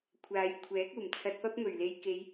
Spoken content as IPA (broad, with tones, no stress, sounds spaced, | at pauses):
kʷʰ aː˨˧ j kʷʰ ɛː˨˥ k̚ uː˨˩ m t͡sʰ ɐ˧ t̚ p ɐ˥ p̚ m ɵ˨˩ ɥ l e˨ j k e˨˧ j